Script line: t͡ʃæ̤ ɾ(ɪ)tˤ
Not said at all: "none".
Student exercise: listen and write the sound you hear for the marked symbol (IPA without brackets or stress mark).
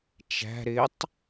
ɪ